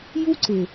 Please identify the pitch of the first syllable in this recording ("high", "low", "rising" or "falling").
high